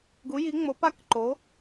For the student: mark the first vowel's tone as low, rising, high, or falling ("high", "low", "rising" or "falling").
rising